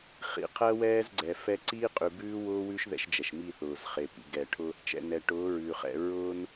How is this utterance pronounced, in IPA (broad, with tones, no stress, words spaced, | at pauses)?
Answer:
χḭ˨qʰɜ˦wɛː˦z ɡ͡ǀɛ˨fɛ˦ ǀiː˦qʼʉ˨ bʉː˦wʊː˦wʉ˦ʃ ðɛ̰˦ʃd͡ʒɛ˨ʃ mi˦˨θʊː˨zχe˨ pḭ˨ɡɛ˨ʈʰʊ˦ | t͡ʃɛ̰˨nɛ˨ʈʊː˨˦ ɹʉː˨χɛ̰˨ ɹʊː˦n